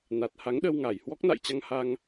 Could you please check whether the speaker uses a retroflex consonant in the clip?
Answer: no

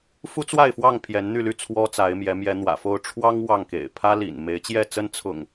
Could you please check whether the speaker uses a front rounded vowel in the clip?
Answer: yes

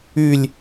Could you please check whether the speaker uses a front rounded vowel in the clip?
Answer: yes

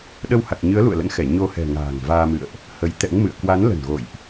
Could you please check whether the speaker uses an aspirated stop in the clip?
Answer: no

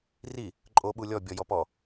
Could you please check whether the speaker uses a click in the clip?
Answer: yes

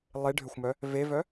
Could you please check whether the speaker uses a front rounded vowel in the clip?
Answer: yes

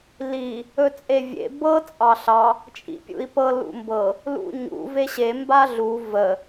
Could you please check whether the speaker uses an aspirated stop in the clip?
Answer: no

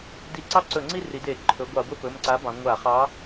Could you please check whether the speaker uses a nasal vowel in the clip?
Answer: yes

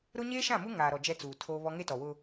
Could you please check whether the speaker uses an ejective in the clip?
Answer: no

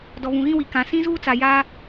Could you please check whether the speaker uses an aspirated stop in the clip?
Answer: no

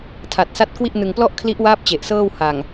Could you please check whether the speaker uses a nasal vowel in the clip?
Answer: no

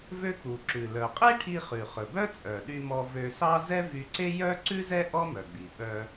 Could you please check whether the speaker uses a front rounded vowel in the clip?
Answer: yes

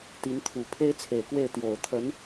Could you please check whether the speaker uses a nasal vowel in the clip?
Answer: no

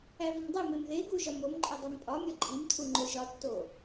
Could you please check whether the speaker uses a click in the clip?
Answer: yes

